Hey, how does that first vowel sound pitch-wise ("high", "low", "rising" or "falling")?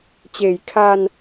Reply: low